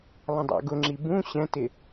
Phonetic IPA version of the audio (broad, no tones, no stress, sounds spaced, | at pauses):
lˠ ə̃ dˤ ɑ̰ ɡ ʊ ŋ͡ǁ i b ũ ɕ ɛ̃ t ɪ